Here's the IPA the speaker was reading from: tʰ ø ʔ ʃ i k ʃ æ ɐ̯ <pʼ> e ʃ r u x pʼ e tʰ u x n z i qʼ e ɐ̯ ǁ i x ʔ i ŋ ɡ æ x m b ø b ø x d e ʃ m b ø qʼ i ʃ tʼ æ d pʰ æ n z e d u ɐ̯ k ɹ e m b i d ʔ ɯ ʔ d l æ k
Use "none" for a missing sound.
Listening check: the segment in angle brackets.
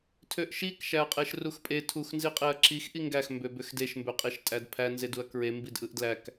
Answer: qʼ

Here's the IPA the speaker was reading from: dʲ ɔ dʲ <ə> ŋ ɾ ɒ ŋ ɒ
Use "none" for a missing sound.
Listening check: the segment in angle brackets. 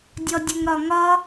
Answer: ə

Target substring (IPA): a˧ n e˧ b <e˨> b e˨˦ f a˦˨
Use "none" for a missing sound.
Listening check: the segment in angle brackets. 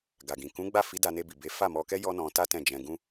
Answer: i˨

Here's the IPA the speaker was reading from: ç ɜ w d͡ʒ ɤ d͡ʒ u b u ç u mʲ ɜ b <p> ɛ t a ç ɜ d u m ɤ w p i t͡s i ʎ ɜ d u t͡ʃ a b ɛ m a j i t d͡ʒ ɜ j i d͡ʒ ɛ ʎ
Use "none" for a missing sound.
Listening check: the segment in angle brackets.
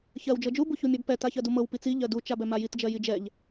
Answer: p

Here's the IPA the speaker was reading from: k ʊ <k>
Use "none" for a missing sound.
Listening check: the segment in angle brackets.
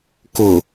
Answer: none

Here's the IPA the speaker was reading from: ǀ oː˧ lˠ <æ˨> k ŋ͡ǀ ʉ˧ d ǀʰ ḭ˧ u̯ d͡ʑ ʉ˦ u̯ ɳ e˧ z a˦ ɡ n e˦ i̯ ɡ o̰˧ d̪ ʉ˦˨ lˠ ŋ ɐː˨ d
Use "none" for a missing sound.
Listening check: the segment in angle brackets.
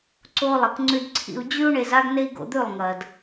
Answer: ɐ˨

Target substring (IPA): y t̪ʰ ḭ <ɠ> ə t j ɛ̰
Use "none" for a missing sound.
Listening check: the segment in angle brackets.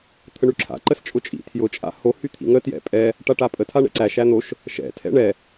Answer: ŋ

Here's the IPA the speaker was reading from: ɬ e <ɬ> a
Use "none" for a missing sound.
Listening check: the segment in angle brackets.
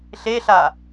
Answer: ɬ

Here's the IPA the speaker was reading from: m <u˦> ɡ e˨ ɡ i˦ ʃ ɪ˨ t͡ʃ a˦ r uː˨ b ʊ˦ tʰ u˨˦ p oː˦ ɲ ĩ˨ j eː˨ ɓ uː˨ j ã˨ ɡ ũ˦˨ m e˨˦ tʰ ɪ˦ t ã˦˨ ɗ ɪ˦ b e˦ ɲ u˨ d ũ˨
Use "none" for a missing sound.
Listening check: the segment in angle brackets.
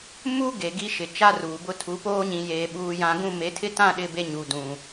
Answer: u˦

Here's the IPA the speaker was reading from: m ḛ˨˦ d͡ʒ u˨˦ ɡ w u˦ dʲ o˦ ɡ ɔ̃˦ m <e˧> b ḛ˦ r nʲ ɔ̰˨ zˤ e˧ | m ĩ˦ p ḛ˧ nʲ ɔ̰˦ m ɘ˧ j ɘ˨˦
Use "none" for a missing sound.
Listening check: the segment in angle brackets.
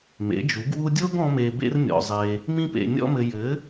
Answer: e˧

